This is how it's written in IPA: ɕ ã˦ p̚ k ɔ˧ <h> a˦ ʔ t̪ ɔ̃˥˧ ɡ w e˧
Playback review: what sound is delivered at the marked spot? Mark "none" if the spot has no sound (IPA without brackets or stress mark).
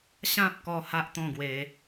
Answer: h